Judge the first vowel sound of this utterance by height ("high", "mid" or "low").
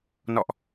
mid